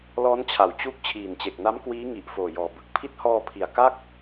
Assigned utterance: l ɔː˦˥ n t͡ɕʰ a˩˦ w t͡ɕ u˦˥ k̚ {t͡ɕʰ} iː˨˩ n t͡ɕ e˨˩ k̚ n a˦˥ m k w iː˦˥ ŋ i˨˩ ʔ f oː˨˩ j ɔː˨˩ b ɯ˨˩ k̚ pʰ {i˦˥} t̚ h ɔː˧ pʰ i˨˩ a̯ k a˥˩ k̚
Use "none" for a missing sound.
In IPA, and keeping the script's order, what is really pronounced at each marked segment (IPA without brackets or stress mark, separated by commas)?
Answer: t͡ɕʰ, i˦˥